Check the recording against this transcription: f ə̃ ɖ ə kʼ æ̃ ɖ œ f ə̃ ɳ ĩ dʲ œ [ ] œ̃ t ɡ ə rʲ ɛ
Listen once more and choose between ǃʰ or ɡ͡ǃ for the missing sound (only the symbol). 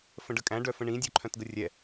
ǃʰ